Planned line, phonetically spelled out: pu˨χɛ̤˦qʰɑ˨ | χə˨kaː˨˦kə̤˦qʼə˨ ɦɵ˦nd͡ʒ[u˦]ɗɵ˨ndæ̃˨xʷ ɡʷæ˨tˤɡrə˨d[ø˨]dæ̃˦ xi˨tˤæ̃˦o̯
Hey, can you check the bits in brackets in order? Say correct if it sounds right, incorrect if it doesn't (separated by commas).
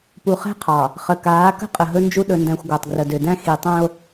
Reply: correct, correct